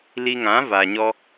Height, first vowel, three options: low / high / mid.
high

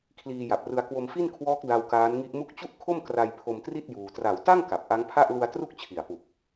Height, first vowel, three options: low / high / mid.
high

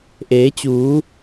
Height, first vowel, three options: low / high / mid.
mid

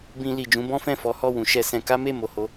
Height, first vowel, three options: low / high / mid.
high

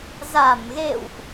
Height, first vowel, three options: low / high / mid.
low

